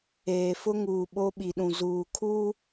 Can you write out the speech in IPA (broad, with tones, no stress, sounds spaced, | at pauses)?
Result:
eː˨ f ʊ˦ ŋ uː˨ ɓ o˦ ɓ i˨ ɗ ũ˨ z uː˨ kʰ uː˦